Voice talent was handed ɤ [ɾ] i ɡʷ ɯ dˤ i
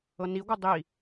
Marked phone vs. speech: incorrect: n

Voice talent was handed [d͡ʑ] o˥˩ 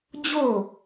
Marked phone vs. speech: correct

